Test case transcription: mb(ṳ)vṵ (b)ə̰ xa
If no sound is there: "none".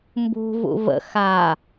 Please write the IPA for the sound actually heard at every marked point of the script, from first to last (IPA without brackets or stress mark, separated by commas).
ṳ, v